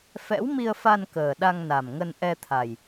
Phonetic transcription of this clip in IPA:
fɛ̰˧˥wmi˧ə̯fa˧n kəː˨˩ɗa˧ŋna˨˩mŋə˧n ʔɛ˧t̪ʰa˨˩j

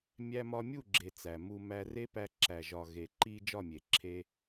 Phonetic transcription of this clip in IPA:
mʲæ˧mɒ˧mʲu˦˨ɡ͡ǁe˨ t͡sæ˨mu˧ mæ˧re˦pæ˧ ǁæ˨ʒɒ˨ɣe˨ǃi˧ d͡ʒɒ˦˨mʲe˨ǁʰe˧

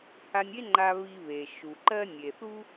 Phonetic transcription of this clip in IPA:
ha˧nʲe˥ŋ͡ǃa˧ βi˧βe˩ʃu˩ǃɜ˥ nʲe˩θu˥

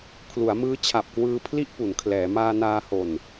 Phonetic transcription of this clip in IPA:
kʰlu˩˦a̯mɯː˦˥t͡ɕʰa˨˩p̚ kwɯː˧ pʰli˥˩ʔpu˩˦n kʰlɛː˩˦ maː˧naː˧ho˨˩n

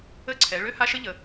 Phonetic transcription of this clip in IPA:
ə˥˧ǀʰɛ˩˧ ɭø˥ha˥ʃə˥ ʎə˩˧

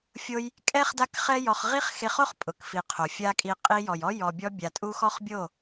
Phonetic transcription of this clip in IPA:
fʲo˦j | kʼɛ˦χ da˦kχɛ˦jɔ˧χ ʁi˦χxe˧χo˦χ pʼʊ˨kfi˨ qʰo˨fʲa˦kʼi˧ qʼi˧jɔ˨jɔ˦ jɔ˨bʲɔ˧bʲa˨tʼu˧ xɔ˦χbʲo˦˨

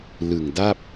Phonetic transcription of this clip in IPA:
lɯ˨˩ŋda˥˩p̚

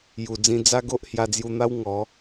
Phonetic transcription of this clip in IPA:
ju˨˩d͡zĩ˧ d͡za˦ɡo˦ʔ hja˧d͡zju˧n̪a˦w ŋɔ˨˦

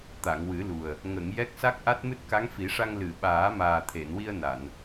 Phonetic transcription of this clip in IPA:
t̪a˨˩˨ŋwɨ˨˩˦lu˨˩ə̯ | ŋə˨˩˨ŋ jɛ˦˥k̚sa˦˥k̚ʔa˦˥t̚mɨ˦˥t̚ ka˧˥ŋfi˨˩˦ʂa˧ŋ lɨ˨˩˨ ɓaː˨˩˦maː˨˩t̪ʰe˨˩˨nwi˧ə̯ na˨˩˨n

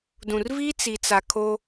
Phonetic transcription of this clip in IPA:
dũ˨rvi˦t͡si˨t͡sa˨ kʰo˦

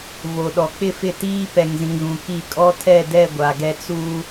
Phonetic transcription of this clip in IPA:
vo˨ɗɔ˨ k͡pɪ˦˨fɪ˦˨ tiː˦pɛ˨ŋzĩ˨ ɣũ˨ki˦˨ kʼɔ˦tʰɛ˦˨dɛ˦˨ ɡʷa˨ɡɛ˦ t͡suː˦

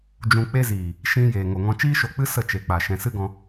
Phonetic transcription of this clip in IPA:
d͡ʒũ˧k͡pe˦ ziː˨ | ʃĩ˧ jeː˨ŋo˨ŋɔ̃˧ t͡ʃiː˦ʃo˧k͡pɨ˦ sə˦˨t͡ʃe˨k͡pa˨ ʃɛ̃˨sɨ˦ɡɔ̃˧

